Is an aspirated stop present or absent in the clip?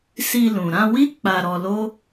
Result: absent